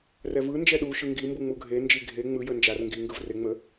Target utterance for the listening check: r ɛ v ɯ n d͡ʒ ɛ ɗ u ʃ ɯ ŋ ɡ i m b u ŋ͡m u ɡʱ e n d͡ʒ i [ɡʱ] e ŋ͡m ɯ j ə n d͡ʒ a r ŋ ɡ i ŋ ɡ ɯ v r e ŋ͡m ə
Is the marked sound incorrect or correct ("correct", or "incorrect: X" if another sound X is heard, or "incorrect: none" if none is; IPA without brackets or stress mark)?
correct